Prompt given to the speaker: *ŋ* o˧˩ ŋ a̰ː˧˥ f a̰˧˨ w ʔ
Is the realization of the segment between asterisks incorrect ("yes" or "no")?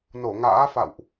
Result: yes